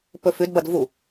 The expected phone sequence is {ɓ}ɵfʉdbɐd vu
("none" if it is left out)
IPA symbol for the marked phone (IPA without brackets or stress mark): p